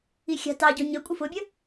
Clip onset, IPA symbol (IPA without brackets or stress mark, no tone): i